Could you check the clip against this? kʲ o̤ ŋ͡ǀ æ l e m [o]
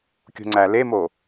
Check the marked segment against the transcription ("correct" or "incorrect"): correct